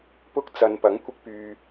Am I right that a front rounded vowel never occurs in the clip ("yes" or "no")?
no